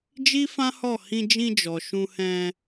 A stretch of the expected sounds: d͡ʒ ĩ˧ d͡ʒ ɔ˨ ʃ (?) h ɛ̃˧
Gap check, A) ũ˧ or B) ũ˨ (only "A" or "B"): A